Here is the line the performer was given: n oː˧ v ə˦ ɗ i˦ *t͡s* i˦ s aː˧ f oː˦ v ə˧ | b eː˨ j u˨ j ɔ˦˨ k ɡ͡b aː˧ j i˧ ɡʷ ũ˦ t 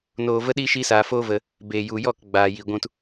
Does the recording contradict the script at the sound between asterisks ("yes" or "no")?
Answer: yes